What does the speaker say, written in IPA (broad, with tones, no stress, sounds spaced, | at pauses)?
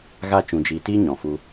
ɣ a˦ t͡ʃ ũ˨ d͡ʒ iː˨ t iː˦ ɲ ɔ̃˨ f u˧